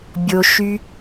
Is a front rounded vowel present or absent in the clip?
present